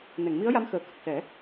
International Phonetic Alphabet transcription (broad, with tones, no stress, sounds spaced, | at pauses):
n ɛ˨˩˨ ŋ m i˧˥ ə̯ j a˧˥ m x əː˨˩ k ə˨˩ k̚ s ɛ˨˩˦